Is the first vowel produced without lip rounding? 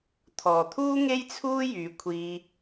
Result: no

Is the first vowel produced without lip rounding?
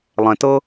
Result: yes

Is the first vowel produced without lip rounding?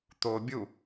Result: no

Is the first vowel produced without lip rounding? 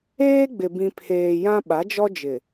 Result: yes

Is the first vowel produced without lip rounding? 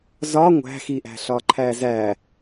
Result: no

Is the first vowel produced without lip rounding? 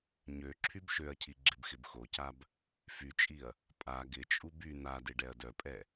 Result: no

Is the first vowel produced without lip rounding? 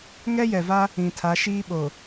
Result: yes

